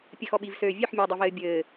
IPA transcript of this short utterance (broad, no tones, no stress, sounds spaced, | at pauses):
pʲ ɘ x ɔ ɓ i v s øː vʲ ø ħ mʲ ɘː dˤ ɤ v ɘː bʲ ɘː